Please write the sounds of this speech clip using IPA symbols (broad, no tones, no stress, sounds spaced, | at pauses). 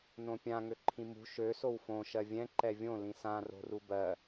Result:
n õ pʲ ã ŋ ø ǃʰ ĩ m ṳ ʃ ø s o w f õ ʃ ɜ vʲ ɛ̃ ǃ ɛ vʲ õ l ĩ s ã r o̤ r u b ɜ